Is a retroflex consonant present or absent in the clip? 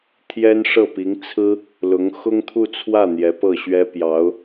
present